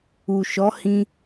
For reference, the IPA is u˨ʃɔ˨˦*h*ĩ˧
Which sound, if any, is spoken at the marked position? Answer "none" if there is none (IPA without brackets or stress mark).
h